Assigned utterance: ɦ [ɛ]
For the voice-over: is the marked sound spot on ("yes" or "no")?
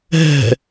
no